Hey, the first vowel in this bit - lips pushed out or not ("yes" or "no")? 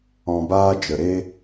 yes